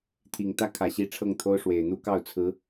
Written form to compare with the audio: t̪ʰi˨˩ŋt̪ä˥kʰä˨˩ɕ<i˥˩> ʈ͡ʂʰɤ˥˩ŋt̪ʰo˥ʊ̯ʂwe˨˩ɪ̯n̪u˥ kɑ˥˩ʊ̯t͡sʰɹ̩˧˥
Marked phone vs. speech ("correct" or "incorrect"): incorrect